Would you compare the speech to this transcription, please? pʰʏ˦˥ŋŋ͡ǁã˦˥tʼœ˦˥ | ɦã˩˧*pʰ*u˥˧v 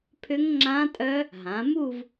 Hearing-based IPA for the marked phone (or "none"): m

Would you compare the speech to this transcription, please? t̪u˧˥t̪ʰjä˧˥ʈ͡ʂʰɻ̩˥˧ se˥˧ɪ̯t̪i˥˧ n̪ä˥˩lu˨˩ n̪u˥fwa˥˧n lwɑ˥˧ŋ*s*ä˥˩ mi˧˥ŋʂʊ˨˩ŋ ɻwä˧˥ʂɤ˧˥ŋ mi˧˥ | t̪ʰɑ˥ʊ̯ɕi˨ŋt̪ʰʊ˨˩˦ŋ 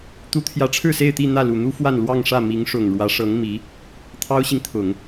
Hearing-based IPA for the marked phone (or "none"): ʂ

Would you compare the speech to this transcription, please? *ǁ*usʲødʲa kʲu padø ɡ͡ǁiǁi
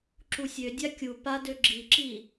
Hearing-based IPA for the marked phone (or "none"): ǁ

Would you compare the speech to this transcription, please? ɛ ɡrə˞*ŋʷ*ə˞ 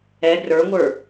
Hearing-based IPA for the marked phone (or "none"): ŋʷ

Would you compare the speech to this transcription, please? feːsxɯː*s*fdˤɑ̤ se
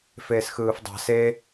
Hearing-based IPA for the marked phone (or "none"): none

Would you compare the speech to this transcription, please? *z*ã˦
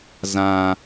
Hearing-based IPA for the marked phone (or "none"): z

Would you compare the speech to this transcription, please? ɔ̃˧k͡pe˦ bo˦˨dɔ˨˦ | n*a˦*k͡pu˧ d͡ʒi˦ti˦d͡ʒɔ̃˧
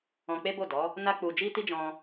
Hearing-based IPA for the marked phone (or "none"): a˦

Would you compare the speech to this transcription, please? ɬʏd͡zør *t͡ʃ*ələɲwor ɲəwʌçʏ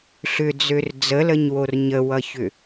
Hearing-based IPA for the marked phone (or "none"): d͡z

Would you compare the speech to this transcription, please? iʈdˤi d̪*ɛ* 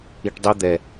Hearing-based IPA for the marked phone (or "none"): ɛ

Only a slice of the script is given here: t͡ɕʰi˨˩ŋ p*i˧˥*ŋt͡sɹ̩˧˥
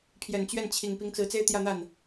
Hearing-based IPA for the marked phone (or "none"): i˧˥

